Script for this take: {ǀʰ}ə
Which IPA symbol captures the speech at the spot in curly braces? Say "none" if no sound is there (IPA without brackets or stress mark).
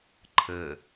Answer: ǃʰ